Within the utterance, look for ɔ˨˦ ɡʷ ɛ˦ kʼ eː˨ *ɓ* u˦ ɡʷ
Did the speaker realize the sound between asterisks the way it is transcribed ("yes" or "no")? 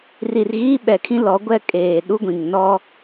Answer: no